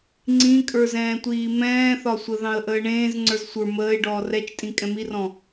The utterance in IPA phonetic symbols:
ŋ͡ǀ ĩ kʼ ə˞ z ɛ̃ː tʷ iː m ɛ̃ː θ ɒ sʷ ə ð ɑ̃ ə̯ ʔ əː ɳ ẽː z ŋ͡ǀ ə˞ z sʷ ə˞ m əː ɪ̯ ɖ ɔː r ɛ t͡ʃ tʼ ĩ kʼ ɛ̃ m i r ɔ̃

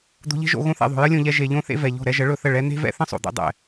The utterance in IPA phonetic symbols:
d̪ o̤˧ ʎ e̤˦ ʒ o̰˧ ɣ õ˧ θ ɛ̰˨ ðˤ o̤˨ j ə˦ lʲ õ˧ ʎ ɛ˧ ʒ e˨ ʎ õ˧ θ ḛ˧ v ɛ˨ ʎ o̤˦˨ ɾ ɛ˧ ʒ ə˨˦ ɭ ɵ˦˨ θ ə˦˨ ɭ ɛ˧ n̪ e̤˦ v ɛ̰˦ θ ə̃˦ sˤ o̰˨ d̪ ɛ̰˧ dˤ ɛ̰˨

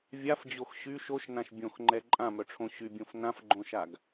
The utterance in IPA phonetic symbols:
vʲ a f d͡ʑ o x ɕ y ʃ o ʃ n ã ʃ bʲ õ x ŋ͡ǃ ɛ ǃʼ ã m œ ʈ͡ʂʰ õ ɕ y bʲ õ f n ã f ɡ͡ǃ õ ʃ a ɡ

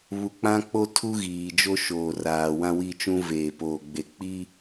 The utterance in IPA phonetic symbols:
β u˨ k͡p ã˦ k͡p o˦ tʰ u˦ ɣ iː˨ d͡ʒ o˦ ʃ oː˨ r aː˨ w ã˦ w i˦ t͡ʃ ũ˦ v eː˨ p oː˨ ɡ͡b e˨ k͡p i˦

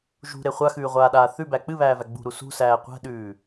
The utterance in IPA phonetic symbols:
ʒ ṳ ɾ e χʷ a x ʉː ʁʷ aː ɗ aː θ ʉ b æ k͡p ɨ β æː v æ ɡ͡b ṳ ɾ u s ṳ s æː qʷ æ̤ ɗ ʉː

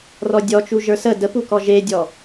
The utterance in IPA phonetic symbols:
r ɔ dʲ ɔ t͡ʃ u ʒ ə˞ s ə d ə p u k ɔ ʒ e dʲ ɔ

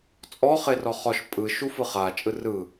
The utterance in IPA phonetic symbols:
t͡sʼ ɔ χ e r ɔ χ ɔ ʃ pʼ ɯ ʃ u f ɯ χ a t͡ʃʼ ɯ r ɯ

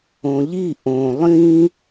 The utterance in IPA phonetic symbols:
õ ʎ i ʔ õ lˠ ĩ

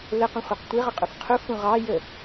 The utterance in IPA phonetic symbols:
l ə q ũ χʷ i q tʷ i ʁ ə qʼ u f qʰ u f ũ ʁ ɑ j ə

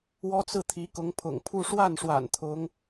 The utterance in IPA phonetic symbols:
w ɔ˥ t͡s ɹ̩˥˩ t̪ʰ i˧˥ k ʊ˧˥ ŋ pʰ ʊ̰˨˩ ŋ pʰ u˥˧ ʂ w a˥˩ n ʂ w a̰˨˩ n t̪ʰ ʊ˧˥ ŋ

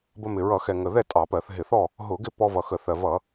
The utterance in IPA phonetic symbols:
b ə˧ m ɪ˨˩ ɹ ʌ˧˩˧ x ɛ˨˩ ŋ ə˨˩ ð ɛ˥˨ tʼ ɑ˧˩˧ p ɜ˧˩˧ θ ɦ ɪ˧˩˧ θ ɔ˥˨ | ɦ ʊ˧˩˧ ɡ ɪ˥˨ p ɔ˧ v ʌ˨˩ x ə˧˩˧ θ ɜ˨˩ v ʌ˧˩˧

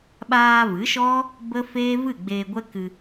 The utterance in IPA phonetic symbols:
ɓ aː˧ v ɨ˨˦ ʃ ɔ˦ | b ə˦ f eː˦ v ɨ˦˨ ɡ͡b eː˧ ɡʷ ɛ˦ k ɨ˧

